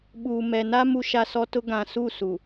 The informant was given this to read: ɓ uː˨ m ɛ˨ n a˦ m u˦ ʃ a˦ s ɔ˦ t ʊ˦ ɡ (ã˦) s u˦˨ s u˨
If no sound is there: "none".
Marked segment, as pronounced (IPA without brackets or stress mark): ã˨